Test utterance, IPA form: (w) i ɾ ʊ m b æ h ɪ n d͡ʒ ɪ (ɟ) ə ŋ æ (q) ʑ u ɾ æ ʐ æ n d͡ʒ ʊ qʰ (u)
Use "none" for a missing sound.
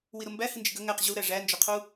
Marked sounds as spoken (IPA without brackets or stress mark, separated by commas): w, ɡ, q, u